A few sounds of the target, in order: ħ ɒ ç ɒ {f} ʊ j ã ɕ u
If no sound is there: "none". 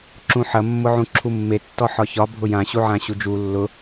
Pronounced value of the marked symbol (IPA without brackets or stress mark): bʱ